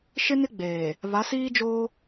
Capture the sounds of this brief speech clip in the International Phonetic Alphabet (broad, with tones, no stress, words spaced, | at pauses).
ʃɪ˦nɪ˦ɡ͡beː˨ | βa˨˦siː˦d͡ʒoː˦